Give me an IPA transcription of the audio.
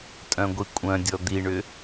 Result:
tʼ œ̃ ɡʷ i kʷʼ œ̃ dʲ ɔ d̪ i ɳ ʏ

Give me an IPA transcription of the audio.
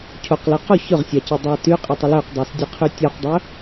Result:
cʰ o q l ɜ q o ç ɵ ʁ sʲ a c ɜ dˤ a t y qʼ ɪ tˤ ɪ l ɵ q dˤ ɜ s dʲ a qʰ y tʲ ɔ q dˤ ɵ

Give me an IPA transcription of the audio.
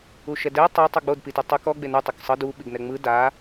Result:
u ʃ ɛ d ɛ tˤ a tˤ u ɡ͡b o d p i t ɯ tˤ u k ɔ ɡ͡b e n u tˤ o k sˤ ɤ d u ɓ i ɡ n ɛ ŋ͡m ɯ d a

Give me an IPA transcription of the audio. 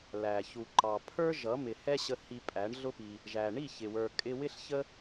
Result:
l æ˨ ç u˨ ǃ ɑ˨ pʰ ə˞˦ ʒ ʌ˨˦ m ɪ˨ h ɛ˦ ɕ ə˧ h i˧ pʼ æ˨˦ ɳ ɮ ʊ˦ p i˧ | ʒ æ˨ ɳ i˦˨ ç ɪ˨ w ə˞˨ kʼ ɪ˧ w ɪ˦ ɬ ç ə˦

